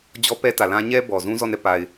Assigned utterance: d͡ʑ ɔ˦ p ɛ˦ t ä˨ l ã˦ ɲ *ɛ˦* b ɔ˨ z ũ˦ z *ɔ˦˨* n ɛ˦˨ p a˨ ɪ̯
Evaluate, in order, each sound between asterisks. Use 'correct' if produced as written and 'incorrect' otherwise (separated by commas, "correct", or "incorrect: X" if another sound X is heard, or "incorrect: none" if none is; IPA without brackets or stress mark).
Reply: correct, correct